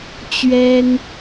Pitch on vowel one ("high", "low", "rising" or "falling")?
high